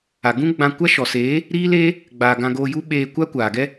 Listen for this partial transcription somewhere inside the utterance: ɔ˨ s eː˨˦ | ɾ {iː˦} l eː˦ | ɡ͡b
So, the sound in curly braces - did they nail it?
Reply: yes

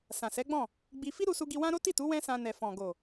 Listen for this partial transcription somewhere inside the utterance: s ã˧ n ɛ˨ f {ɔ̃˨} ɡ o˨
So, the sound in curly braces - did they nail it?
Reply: yes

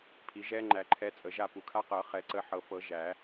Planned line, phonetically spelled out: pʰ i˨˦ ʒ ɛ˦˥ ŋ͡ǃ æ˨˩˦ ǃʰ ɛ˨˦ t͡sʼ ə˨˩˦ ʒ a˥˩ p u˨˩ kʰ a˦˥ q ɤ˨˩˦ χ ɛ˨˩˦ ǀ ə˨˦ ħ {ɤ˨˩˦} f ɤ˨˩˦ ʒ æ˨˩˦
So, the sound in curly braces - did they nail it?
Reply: yes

